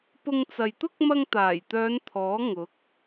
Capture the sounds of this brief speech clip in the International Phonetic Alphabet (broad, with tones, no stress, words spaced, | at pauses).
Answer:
pʊ˧ŋt͡sɐ˨jt̪ʊ˥k̚ mɐ˧ŋt̪aː˨˩jt̪œː˨˧n t̪ʰɔː˨˥ ŋʊ˨˥k̚